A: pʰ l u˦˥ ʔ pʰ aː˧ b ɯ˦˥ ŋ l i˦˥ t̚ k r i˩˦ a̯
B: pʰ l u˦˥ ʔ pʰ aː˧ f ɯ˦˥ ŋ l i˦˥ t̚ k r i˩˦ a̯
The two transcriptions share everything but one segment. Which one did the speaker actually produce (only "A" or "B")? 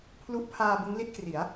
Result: A